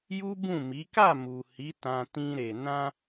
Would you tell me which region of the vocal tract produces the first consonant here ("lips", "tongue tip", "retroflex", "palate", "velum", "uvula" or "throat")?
palate